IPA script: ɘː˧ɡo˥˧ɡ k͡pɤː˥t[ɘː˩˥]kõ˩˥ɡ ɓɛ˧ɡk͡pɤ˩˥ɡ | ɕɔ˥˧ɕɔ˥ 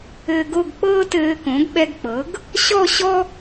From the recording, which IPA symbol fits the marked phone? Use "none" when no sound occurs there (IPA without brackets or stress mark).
ɘː˧